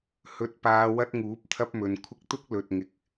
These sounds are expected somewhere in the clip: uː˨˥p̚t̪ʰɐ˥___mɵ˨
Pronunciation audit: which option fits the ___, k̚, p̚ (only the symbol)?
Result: p̚